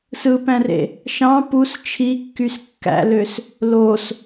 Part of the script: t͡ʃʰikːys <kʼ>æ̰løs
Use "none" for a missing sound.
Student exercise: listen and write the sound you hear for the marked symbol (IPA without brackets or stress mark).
kː